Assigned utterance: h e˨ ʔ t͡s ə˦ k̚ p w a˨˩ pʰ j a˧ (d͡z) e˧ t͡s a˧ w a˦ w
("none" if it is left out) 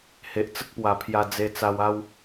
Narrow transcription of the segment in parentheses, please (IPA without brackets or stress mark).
d͡z